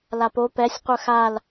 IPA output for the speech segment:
l a p o p ɛ sʲ qʷ œ x a l

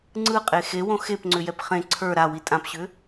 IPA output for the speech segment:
ŋ͡ǀ ɯ qʼ e x e w õ x e p ŋ͡ǀ ʏ j ɛ p χ ẽ ǀʰ ə˞ ɾ a w i tʼ ã p ɕ ʏ

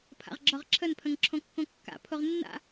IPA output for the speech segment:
pʰ a̰ ʁ ɡ͡ǁ ɒ ʁ ǁʰ ə n pʰ ə̃ ŋ ǁʰ õ kː õ kː a̰ pʰ o ʁ nː a̰

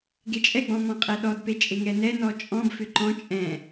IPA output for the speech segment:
ɡ e t͡ʃʼ ɛ ɡ͡b ɔ̃ m ɔ̃ qʼ ɛ ɗ ɔ d p e t͡ʃʼ e ŋ ɛ n ɛ n ɔ t͡ʃʼ ɔ̃ b f ʏ ǃ ɔ̃ t͡ʃʼ ɛ̃

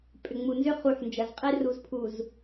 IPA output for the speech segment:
pʼ ʏ˨ ŋ͡m u˨ n z ʏ˦ χ u˨ ħ n d͡ʒ ɐ˨ z qʼ e˦ r u˨ z pʰ u˨ z

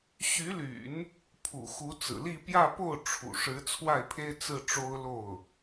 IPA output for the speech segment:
ɕ y˧˥ l y̰˨˩˦ n | pʰ ṵ˨˩ x u˧˥ t͡s ɹ̩˨˩ l i˥˧ p j ä˥˧ p o˥˩ ʊ̯ ʈ͡ʂʰ ṵ˨˩ ʂ ɻ̩˧˥ t͡sʰ w a˥˩ ɪ̯ pʰ e˥ ɪ̯ t͡s ɹ̩˥˩ ʈ͡ʂ o˥ ʊ̯ l o˥˩ ʊ̯

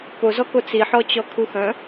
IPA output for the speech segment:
p o z ɔ k o t͡s i ħ ɔ t͡ɕ ɔ kʰ u x œ̃

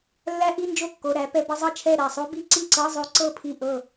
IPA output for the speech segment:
lː æ˦˥ ʔ i˧˥˧ n d͡ʒ o˥˨ kː o˧˥˧ ɾ æ˦˥ p ɛ˦˥ b ə˦˥ zˤ ɤ˥˨ t͡ʃʰ ɛ˥˨ ɾ æ˥˨ sˤ o˦˥ b i˧˥˧ ǀ i˥˨ ǀ ɤ˧˥˧ zˤ o˦˥ ǀ ɤ˥˨ pʰ i˥˨ ʔ ɤ˥˨

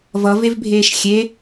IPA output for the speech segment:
v ʌ v e v bʱ eː ʃ xʲ e

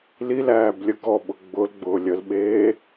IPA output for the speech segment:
l i l æː b lʲ ə ɡ ɔ ɓ ʊ ɡ͡b ʊ l ɡ͡b ʊː lʲ ə l ɓ eː

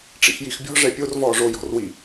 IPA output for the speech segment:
ʈ͡ʂ ḭ x j i x bʲ ɔ̤ ʐ ɛ pʲ o r v ɔː ʐ o j ɔ̤ r w i

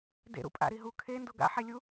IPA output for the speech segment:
d ḛ ɾ ṵ pʼ a̰ ɾ i ɦ u kʰ e n d o ɡ a̰ ħ e lʲ u

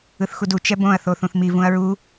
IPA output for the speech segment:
ɯ θ x u d u t͡ʃ ɛ b õ ɐ̯ θ o θ ũ θ m i v ũ ɐ̯ ɹ u

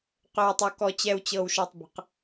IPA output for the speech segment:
q ø˨ w tˤ o˨ k ɔ˨ t͡ɕ ɛ˨ w t͡ɕ ɤ˨ w ʃ ɔ˨ tˤ b ə̤˨ q

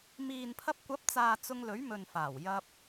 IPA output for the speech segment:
m iː˨ n pʰ ɐ˧ p̚ kʷ ɐ˨˥ p̚ t͡s aː˨ t͡s ʊ˧ ŋ l ɵ˨˥ ɥ m ɵ˨ n f aː˨˩ w j ɐ˧ p̚

